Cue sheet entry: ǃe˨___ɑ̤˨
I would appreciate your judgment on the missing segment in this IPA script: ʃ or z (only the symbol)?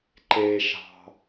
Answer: ʃ